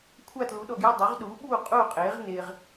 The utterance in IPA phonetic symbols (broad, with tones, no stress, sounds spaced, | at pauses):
kʷʰ a˥˨ t l u˩˥ ɗ ɔ˨ ɡ j e˥˨ dˤ o˩˥ ʁ ɗ uː˩˥ ɓ uː˥˨ qʼ uː˥˨ qʼ eː˩˥ ʁ n e˨ ʁ